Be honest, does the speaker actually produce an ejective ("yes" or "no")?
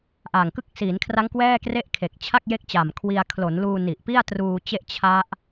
no